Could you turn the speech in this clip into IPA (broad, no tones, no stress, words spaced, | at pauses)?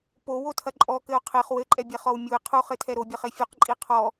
powotʰɐ ǃʼɔkɘo̯ qʰeχ wɘǃʼɛbʲɛχɔw mʲue̯ qʰuχɘtʰɛ ɾobʲɐχe fʲuqǃʼi qʰɔ